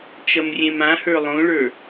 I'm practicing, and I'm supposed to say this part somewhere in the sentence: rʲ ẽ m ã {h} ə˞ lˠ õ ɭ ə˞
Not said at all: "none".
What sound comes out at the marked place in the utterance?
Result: h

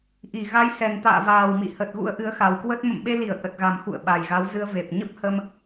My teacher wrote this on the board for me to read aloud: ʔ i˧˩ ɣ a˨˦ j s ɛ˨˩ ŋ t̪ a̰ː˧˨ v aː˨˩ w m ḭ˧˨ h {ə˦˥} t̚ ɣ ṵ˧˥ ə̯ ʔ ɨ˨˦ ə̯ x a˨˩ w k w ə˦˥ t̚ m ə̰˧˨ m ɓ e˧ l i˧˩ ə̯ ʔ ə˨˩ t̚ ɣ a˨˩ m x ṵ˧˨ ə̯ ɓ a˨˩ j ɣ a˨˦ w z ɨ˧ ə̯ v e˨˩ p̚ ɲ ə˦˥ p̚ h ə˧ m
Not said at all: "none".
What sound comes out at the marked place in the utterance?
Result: ə˨˩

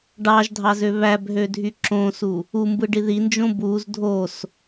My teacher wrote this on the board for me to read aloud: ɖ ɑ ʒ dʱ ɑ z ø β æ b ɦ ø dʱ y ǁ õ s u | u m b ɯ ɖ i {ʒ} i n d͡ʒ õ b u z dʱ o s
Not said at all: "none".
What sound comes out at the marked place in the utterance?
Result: ð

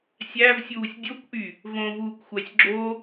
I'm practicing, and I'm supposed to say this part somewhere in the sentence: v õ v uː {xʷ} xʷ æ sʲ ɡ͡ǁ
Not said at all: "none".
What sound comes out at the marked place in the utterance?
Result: kʷ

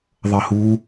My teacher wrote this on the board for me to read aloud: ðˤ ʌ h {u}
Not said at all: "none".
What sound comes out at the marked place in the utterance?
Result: u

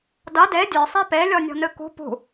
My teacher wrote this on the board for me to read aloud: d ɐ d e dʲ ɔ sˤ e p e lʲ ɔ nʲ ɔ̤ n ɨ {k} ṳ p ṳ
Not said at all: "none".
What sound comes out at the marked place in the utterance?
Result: k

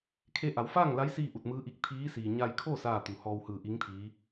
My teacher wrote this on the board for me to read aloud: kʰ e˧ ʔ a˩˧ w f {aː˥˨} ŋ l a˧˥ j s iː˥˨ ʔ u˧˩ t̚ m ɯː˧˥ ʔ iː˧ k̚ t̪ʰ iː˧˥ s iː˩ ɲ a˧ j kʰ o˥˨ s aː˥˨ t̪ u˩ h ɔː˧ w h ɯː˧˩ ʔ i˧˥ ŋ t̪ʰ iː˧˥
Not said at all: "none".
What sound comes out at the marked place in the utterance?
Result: aː˥˨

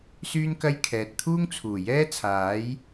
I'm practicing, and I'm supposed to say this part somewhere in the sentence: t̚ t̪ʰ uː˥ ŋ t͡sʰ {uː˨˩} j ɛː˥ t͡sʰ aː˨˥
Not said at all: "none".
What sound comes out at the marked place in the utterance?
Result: uː˨˩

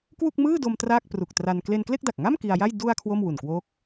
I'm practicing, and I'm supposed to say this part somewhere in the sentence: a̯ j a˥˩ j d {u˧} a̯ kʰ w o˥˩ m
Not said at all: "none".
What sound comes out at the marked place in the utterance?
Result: u˧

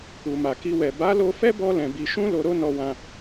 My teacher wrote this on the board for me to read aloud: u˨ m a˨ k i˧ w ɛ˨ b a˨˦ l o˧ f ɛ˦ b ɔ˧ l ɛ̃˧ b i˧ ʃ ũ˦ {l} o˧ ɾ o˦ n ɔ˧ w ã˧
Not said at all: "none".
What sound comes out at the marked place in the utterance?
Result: l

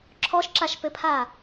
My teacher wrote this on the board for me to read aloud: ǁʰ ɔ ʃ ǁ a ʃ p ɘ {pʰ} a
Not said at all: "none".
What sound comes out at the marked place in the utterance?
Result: pʰ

